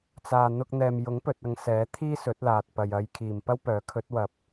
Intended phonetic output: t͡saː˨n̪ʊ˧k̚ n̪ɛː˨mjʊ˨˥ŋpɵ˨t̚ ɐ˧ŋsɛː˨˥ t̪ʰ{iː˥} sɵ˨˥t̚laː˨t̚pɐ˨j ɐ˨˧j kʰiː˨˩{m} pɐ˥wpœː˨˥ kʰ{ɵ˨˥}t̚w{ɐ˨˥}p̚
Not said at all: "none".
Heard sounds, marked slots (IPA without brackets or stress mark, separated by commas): iː˥, m, ɵ˨˥, ɐ˨˥